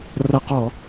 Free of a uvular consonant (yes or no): no